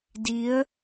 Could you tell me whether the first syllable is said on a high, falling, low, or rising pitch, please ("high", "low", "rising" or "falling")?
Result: rising